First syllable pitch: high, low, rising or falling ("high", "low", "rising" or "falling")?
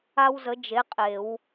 high